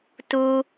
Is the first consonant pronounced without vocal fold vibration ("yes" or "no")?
yes